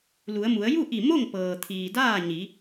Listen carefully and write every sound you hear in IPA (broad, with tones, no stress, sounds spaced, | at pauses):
l u˩˧ ə̯ m u˩˧ ə̯ j u˥˨ ʔ i˧˩ m o˥˨ ŋ p ɤː˩ t̪ʰ iː˩ d aː˥˨ ɲ i˩˧